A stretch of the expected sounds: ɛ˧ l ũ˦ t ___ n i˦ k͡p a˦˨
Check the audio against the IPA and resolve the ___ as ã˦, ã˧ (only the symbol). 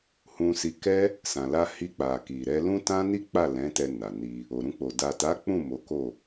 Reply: ã˦